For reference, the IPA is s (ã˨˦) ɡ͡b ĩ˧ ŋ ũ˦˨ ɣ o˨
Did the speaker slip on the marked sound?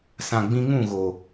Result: yes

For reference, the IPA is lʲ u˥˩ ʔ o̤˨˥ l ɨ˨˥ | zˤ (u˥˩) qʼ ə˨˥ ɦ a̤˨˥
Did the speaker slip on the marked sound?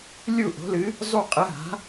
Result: no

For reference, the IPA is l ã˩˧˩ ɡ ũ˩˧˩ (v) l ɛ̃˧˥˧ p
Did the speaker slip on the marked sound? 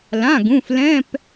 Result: yes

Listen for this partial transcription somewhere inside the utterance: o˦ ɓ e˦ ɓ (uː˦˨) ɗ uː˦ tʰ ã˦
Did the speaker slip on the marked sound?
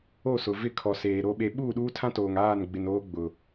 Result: no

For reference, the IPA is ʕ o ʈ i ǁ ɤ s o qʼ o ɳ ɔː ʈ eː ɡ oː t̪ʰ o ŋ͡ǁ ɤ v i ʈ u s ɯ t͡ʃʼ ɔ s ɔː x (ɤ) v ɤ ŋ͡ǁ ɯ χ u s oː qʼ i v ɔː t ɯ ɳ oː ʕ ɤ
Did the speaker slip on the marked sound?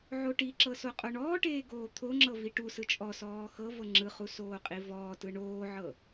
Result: no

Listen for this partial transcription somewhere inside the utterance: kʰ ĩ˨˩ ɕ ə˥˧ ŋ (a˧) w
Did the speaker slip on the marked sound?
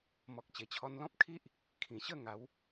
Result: yes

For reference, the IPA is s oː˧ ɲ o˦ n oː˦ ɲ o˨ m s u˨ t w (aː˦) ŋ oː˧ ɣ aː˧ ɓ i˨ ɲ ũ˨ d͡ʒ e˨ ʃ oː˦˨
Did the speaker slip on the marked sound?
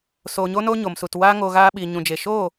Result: no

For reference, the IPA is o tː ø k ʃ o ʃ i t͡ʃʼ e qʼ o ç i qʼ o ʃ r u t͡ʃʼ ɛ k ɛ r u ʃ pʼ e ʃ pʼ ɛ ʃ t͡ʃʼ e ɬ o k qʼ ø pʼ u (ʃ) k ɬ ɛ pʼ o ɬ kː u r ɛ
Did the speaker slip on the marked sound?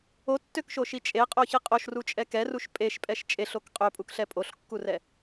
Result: yes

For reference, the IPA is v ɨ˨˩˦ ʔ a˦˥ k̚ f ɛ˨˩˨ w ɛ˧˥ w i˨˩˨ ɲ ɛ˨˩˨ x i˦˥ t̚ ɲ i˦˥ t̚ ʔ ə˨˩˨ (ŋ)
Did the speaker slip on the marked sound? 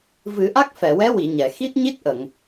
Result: no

